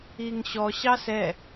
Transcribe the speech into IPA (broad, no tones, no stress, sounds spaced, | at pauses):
i ŋ ɕ ɔ ɕ ɑ s ɛ